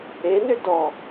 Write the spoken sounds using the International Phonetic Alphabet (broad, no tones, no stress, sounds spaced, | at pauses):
e n ʏ d ɔ